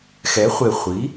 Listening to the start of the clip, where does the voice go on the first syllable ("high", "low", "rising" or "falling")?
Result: rising